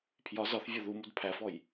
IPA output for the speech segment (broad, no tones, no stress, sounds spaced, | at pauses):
pʰ j ɒ z ɒ θ vʲ ɒ ð u m u d pʰ æ f ɔ j